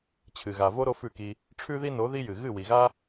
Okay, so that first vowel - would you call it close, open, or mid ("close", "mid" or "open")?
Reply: close